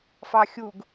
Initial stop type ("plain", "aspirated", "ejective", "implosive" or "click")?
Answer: plain